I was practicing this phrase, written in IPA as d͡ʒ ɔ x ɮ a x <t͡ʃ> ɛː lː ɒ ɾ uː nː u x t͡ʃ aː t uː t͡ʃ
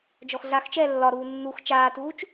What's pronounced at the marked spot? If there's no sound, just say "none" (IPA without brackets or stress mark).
t͡ʃ